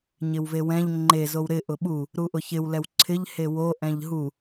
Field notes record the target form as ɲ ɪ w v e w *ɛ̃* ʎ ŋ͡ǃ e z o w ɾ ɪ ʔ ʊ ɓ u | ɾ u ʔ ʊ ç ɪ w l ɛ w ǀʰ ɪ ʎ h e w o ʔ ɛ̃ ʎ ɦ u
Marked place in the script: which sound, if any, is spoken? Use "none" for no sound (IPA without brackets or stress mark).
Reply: ɛ̃